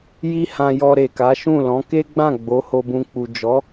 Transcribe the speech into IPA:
j i˧ h ã˧ j ɔ˧ ɾ e˨ k a˨˦ ʃ ũ˦˨ l ɔ̃˨˦ k e˦ ɡ͡b ã˦˨ ɡ͡b o˨˦ h o˧ b ũ˧ k͡p u˨ d͡ʒ ɔ˨˦

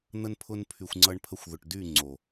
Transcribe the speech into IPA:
n̪ ə˧ n pʰ ʊ˧ n pʰ y˨ xʷ ŋ͡ǀ ʌ˧ ɳ pʰ ə˧ xʷ ð ʊ˨ ʈ d y˦˨ ŋ͡ǀ o˨

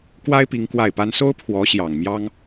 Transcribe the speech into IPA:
k w a˥ ɪ̯ p i˧˥ ŋ k w a˥˩ ɪ̯ p a˥ n s o˥ ʊ̯ pʰ w ɔ˧˥ ɕ j ɑ˨˩ ŋ m j ɑ˥ ŋ

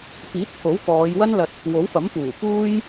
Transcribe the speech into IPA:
p iː˨˥ t̚ pʰ o˨˥ w k ɔː˨˧ j w ɐ˥ n l ɐ˧ t̚ | w o˨˥ w f ɐ˨˥ m p uː˨˩ p uː˥ j

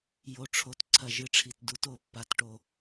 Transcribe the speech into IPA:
j o˨˩ ʈ͡ʂʰ o˨˦ t ǀʰ ɐ˨˩ ʒ ɨ˨˦ ʈ͡ʂʰ i˨˩ t d u˨˦ t o˨˩ pː a˨˦ t ʈ o˨˩

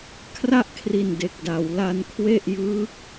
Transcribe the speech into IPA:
kʰ r a˥˩ ʔ kʰ r i˨˩ n d e˨˩ k̚ d a˩˦ w l a˧ n kʰ w e˥˩ ʔ j ɯː˦˥ k̚

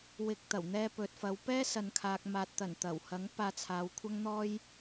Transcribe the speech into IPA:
w ɪ˧ k̚ t̪ ɐ˨˩ w n̪ ɛː˧ p ɵ˨ t̚ f ɐ˨˧ w p ɛː˥ s ɐ˨ n kʰ aː˨ k̚ m aː˨ t̚ t̪ ɐ˨˩ n t̪ ɐ˨˩ w h ɐ˨˥ ŋ p aː˧ t͡sʰ aː˨˧ w kʷʰ ɐ˥ ŋ n̪ ɔː˥ j

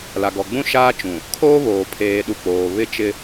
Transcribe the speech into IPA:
l a˨ ɡ ɔ˨ ɡ͡b ũ˦ ʃ aː˦ t͡ʃ ũ˨ | kʰ oː˦ β oː˨ pʰ eː˨ ɗ u˨ k͡p oː˨ β ɪ˦ t͡ʃ ɪ˦

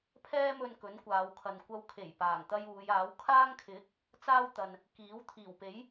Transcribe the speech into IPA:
pʰ ɛː˥ m ɵ˧ n k ɵ˨˥ n kʷ aː˨˧ w kʰ ɐ˨ n kʷ ɐ˧ w kʰ e˨˩ j p aː˨˩ ŋ t̪ ɐ˧ j uː˨˧ j aː˨˥ w kʰ aː˥ ŋ kʰ ɪ˨˥ k̚ | t͡s aː˥ w t̪ ɐ˨ n | k iː˨˥ w t̪ʰ iː˨˩ w p e˨˥ j

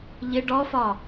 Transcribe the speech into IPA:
ʎ ɪ ɖ ɔ f ɒ

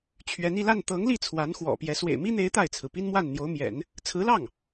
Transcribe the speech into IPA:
t͡ɕʰ ɥ ɛ˧˥ n i˥˧ l a˥˩ n t̪ ɤ˧˥ ŋ l i˥˩ t͡sʰ w a˧˥ n x w ɔ̰˨˩ p j ɛ˧˥ s w ḛ˨˩ ɪ̯ m i˥ n̪ e˧˥ ɪ̯ t̪ a˥˩ ɪ̯ t͡sʰ ɹ̩˩ p i˥ n m w a˥˩ n n̪ j o˧˥ ʊ̯ m j ɛ̰˨˩˦ n | t͡sʰ ɹ̩˧˥ l ɑ˥˩ ŋ

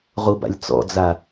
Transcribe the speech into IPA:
ʁ u b a̰ lʲ t͡s ɔ̰ d͡z a

